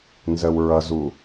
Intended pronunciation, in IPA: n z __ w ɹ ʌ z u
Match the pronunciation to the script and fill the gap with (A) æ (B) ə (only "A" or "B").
B